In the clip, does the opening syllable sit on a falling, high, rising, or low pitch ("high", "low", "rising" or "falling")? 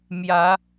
rising